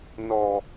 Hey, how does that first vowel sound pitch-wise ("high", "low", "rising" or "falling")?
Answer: low